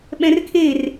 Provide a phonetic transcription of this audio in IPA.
ɓɛ̃rkʰer

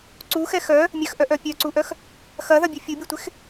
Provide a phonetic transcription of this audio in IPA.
ǀuxɛ xœ | mʲœxʔœʔœ pʲœǀuʔœx | xɐðɐbʲu fʲubʲutʷɪx

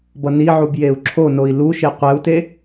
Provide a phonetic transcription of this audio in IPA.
bʌniʕub jeu̯ǁʰonoi̯ luʃe qʷɛu̯te

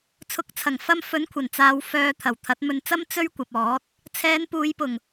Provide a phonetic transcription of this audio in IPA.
t͡sʰʊ˨˥k̚t͡sʰɐ˨˩ŋfɐ˧m fɵ˨˥nkʷʰɐ˨˩nt͡saː˨w fœː˧t̪ʰɐ˨˩w t̪ʰɐ˨˥t̚mɵ˧nt͡sɐ˥m t͡sɵ˥ɥkʷɐ˨p̚ɔː˨˥t̚ | t͡sʰɛː˨˧n puː˨˧jpʊ˨˩ŋ

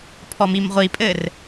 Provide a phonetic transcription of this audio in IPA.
pʰɔmimʁʷipʼɘr

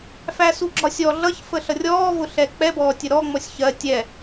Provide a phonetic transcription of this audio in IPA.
fæsuɡ͡ǁɒsʲɔ ɮʌç fəɬʌrʲɔː vʊɬɛk͡pɛ bɔːtʲəɾɔ ŋ͡mɔsʲçɜ tʲɛ

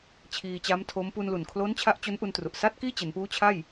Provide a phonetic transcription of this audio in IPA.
t͡ɕʰiː˧t͡ɕa˦˥mtʰo˦˥m pu˧nlu˨˩n kʰlo˦˥n t͡ɕʰa˦˥ʔt͡ɕo˦˥nʔu˧ntru˨˩ʔ sa˥˩t̚kiː˥˩t͡ɕe˩˦npuː˦˥ t͡ɕʰa˥˩j

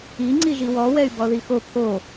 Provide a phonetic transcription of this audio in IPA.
i ŋ͡ǀiʒiwɔ wɛy̯bɔðixo pʰo

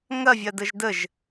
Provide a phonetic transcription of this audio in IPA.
ŋɐvʲɐdəʒ dəʒ

